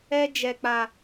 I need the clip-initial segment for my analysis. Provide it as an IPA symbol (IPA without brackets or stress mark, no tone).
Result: ɛ